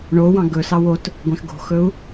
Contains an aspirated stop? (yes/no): no